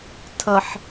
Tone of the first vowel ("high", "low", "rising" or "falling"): low